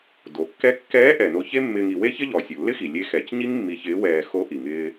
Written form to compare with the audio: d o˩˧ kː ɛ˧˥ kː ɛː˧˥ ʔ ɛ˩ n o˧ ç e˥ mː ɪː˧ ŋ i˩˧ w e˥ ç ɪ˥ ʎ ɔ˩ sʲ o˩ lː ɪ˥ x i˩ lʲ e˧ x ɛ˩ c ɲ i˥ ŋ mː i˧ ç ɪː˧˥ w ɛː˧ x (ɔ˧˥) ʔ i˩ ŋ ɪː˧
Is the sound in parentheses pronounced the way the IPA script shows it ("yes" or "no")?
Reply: no